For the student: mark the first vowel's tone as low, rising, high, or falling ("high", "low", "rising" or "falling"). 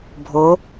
rising